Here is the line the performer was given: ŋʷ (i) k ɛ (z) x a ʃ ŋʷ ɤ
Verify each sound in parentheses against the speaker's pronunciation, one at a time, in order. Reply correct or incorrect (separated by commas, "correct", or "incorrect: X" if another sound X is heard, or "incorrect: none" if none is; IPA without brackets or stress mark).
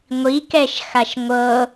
correct, incorrect: ʃ